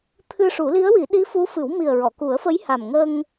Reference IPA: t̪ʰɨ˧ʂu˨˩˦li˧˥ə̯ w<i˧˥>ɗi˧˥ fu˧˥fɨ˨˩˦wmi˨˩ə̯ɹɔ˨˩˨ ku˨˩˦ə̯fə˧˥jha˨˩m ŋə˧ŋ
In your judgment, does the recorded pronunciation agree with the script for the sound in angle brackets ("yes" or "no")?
no